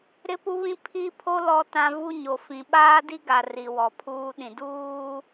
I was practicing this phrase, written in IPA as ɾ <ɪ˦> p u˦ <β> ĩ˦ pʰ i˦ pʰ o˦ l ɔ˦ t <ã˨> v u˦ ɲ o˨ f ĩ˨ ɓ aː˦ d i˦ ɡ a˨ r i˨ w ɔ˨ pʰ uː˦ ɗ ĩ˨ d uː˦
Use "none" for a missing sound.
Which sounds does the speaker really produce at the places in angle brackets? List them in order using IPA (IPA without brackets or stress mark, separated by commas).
ɪ˦, β, ã˦